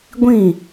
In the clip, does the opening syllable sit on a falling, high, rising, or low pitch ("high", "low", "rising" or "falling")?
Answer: falling